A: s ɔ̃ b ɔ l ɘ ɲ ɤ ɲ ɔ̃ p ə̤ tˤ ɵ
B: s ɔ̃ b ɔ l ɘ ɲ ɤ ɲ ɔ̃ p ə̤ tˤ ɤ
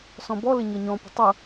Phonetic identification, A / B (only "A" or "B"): B